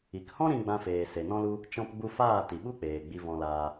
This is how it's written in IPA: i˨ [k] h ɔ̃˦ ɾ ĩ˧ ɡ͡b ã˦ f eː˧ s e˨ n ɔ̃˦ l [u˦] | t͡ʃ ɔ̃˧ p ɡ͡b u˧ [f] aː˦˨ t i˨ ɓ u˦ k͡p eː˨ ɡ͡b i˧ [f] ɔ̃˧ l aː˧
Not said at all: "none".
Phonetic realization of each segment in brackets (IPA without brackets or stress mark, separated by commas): k, u˦, f, v